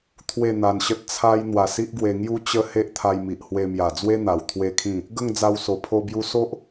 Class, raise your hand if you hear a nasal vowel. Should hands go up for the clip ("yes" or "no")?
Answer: yes